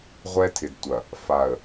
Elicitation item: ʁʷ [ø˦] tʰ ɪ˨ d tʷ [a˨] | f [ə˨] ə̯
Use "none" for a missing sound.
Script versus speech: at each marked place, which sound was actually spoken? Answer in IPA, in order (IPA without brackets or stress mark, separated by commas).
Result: ɛ˦, ɐ˨, a˨